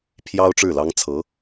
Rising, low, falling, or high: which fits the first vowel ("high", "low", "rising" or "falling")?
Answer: high